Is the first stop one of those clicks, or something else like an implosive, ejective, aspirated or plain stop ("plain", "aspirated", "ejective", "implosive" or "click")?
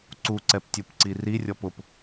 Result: click